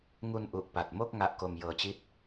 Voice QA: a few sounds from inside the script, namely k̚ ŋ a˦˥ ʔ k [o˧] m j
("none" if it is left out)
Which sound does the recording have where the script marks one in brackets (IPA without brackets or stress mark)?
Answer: o˧